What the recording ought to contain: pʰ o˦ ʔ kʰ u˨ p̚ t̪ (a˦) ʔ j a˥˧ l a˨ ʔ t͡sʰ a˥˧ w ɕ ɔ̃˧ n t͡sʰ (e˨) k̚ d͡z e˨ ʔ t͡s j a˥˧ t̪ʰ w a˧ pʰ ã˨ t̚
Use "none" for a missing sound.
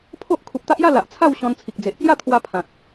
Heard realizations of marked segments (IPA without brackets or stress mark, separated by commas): a˦, i˨